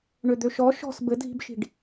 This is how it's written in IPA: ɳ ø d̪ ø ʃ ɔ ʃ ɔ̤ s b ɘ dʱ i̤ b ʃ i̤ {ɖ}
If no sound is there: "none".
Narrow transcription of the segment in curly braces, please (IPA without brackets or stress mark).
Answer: ɖ